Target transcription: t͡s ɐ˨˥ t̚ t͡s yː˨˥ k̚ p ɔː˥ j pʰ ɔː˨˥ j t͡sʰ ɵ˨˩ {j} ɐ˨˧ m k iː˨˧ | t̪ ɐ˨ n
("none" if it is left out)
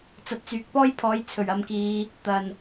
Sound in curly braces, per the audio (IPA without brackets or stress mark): ɥ